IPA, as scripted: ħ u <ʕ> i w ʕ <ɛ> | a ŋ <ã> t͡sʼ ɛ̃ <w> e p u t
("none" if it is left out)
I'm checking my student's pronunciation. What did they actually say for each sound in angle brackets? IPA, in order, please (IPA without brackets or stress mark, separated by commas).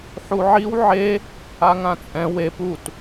ʕ, e, ã, w